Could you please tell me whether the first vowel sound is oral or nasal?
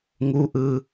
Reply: oral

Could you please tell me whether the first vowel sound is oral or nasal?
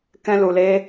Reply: nasal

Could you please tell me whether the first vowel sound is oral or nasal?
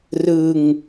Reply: oral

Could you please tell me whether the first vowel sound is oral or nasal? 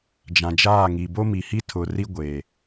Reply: nasal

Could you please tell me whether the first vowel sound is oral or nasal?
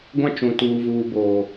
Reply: nasal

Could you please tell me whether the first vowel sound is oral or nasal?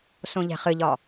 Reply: nasal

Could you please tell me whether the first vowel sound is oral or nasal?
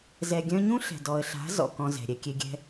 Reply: oral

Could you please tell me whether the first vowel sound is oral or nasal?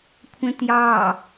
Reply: nasal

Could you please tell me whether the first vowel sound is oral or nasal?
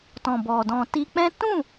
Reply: nasal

